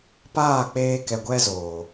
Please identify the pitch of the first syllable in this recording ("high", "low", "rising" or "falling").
falling